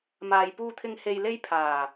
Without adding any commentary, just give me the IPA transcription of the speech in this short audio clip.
maː˨jpuː˧t̪ʰɪ˧ŋ he˧jle˥jpʰaː˨˩

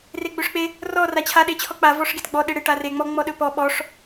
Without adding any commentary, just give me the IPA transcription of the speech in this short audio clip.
reɡ͡bɵʂk͡pe | rɔ rat͡ɕʰa ɗet͡ɕʰɔk͡pa vɔʂɡetɡ͡bɔ ɗeɽeʈ are ŋ͡mɔ ŋ͡mɔɗɵpɔ ɓɔʂ

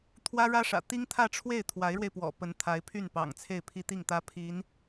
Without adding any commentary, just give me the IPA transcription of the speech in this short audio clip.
t̪ʰwä˥ɻä˥ʂä̰˨˩ t̪i˥ŋt̪ʰä˥˧ʈ͡ʂʰwe˥˩ɪ̯ t̪ʰwa˧˥ɪ̯ɻwe˧ɪ̯pwɔ̰˨˩ pə˧˥n t̪ʰa˧˥ɪ̯pʰy˥˩npɑ̰˨˩ŋ t͡sʰe˥˩ɪ̯pʰi˥t̪i˥˩ŋt̪ä˥ pʰi˧˥n

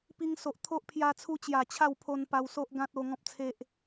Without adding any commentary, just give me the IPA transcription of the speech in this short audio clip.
pi˧ŋso˨ʔt̪ʰo˦ʔ pʰja˧t͡sʰu˧t͡ɕja˨˩ t͡ɕʰa˥˧wpʰo˧npa˧w so˦ʔɡã˦t̚o˧ ŋɔ̃˦p̚t͡sʰe˦ʔ

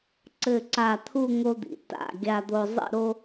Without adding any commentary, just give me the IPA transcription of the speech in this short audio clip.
ǀɘ˧˩ǀa˧˩t̪ʰu˥˧ ŋo˧d̪ḭ˩˧ ta̰˧˩ ɡʲa˧d̪o˧ zˤḭ˥˧ɾo˥

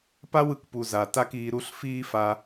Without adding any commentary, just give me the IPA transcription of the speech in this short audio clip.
pa˦wɯ˨kpu˨ za˨ ta˦kiː˧ɾu˦ɬ fiː˦fa˧

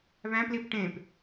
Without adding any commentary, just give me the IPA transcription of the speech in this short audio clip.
βæ̃plip ʈẽp

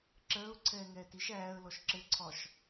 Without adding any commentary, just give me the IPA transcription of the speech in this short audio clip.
ǁɜʊ̯ ǀʰɛːŋɛːtiʃ æːə̯lɔʃ ǁɘǀʰɒʃ

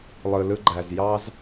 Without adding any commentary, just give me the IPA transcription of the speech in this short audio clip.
lˠɯ˨lɯ˧ɡ͡ǃæ˨z jɑ˦z

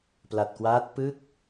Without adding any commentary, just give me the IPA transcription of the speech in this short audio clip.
pla˨˩t̚kwaː˦˥t̚ pɯ˦˥k̚

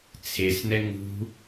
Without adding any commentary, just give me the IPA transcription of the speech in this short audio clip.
t͡sʰesnɛ ŋṳ

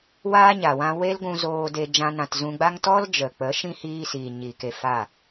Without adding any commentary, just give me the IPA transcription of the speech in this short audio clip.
waː˦ɲa˨wã˧ we˦lɡʷũ˧ zoː˧de˧ d͡ʒã˦nã˧t zũ˧ɡ͡ba˦ŋ tɔ˦ld͡ʒə˨ k͡pə˨˦ʃĩ˦ hiː˦siː˨ ɲi˨ke˧ fa˦˨

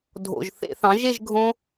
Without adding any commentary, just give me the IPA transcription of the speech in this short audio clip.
dʱo̰˨˩ʒ θḛ˧˩˧θɑ̃˩˥ʒe˥˧ʒ ɡʱõ˦˥

